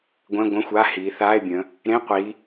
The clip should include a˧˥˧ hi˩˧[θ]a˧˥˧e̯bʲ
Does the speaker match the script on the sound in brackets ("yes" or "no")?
yes